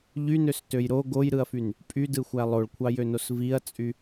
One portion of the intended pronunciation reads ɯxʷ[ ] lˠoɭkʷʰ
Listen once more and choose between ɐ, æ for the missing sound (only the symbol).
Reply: æ